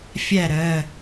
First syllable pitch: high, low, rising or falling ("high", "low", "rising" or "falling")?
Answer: falling